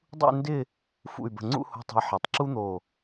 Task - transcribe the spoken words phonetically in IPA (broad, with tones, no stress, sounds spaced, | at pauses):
dˤ ṵ˥˧ n d ɪ˥˧ | f ṵ˧˩ y̯ b ə̤˧˩ ŋ͡ǀ ṵ˥˧ h o̤˧ tˤ ə̤˧ i̯ ħ i˩˧ tˤ ǁ u˥ n̪ o˧˩